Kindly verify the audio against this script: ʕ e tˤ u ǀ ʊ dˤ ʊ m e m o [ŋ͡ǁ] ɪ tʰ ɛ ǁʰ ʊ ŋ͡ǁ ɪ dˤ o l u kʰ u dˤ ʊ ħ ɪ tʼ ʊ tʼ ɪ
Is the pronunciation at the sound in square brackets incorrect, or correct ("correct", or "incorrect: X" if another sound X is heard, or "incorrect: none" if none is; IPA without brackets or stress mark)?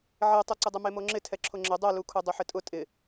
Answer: correct